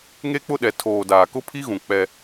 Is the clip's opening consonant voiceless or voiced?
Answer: voiced